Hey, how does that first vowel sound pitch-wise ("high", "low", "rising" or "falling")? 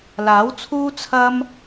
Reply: rising